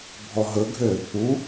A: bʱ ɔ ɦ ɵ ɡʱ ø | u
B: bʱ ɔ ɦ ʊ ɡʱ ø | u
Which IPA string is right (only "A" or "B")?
A